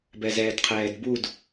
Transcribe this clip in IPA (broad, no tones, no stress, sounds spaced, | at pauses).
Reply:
b ɛ z ɛː d qʰ ɛː d b u d